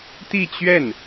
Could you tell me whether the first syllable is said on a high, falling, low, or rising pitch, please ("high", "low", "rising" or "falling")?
falling